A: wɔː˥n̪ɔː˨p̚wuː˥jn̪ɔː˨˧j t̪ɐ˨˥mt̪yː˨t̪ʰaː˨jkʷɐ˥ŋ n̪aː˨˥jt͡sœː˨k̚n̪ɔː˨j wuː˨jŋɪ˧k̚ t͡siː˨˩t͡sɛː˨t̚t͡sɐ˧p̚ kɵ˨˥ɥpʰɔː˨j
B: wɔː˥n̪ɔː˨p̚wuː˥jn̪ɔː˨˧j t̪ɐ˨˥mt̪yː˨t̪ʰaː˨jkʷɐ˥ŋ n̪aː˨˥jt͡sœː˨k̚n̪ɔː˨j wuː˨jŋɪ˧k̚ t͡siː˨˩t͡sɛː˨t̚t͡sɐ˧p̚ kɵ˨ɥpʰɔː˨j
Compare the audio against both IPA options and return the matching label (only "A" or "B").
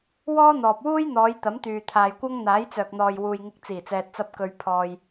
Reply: B